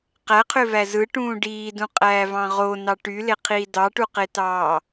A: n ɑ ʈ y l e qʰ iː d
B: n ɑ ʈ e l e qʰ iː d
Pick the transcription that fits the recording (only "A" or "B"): A